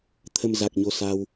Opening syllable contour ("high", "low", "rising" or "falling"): low